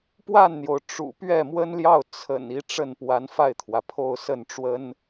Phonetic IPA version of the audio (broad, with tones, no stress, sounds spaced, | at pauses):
p w a˥˩ n n̪ j o˩ ʊ̯ ʈ͡ʂ ṵ˨˩ p ɥ ɛ˥˩ m w ə˥ n l j ɑ˥˩ ʊ̯ t͡sʰ ə̰˨˩ n i˧˥ ʈ͡ʂ ə˥˩ n p w a˧˥ n f a˥˩ ɪ̯ t̪ʰ w ä˩ pʰ o˥˧ ʊ̯ s ə˥˩ n ʈ͡ʂ w ə˥ n